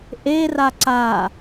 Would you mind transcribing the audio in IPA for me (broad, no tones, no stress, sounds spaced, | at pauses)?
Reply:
ʔ e r a ǀ a